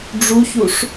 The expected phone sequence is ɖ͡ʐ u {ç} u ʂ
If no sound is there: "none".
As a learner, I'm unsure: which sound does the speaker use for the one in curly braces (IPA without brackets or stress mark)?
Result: ç